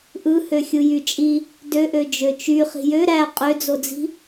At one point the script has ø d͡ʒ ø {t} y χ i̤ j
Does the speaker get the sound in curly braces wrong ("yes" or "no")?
yes